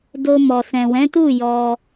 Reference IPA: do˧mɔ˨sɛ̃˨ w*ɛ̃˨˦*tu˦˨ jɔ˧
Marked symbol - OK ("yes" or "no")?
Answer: yes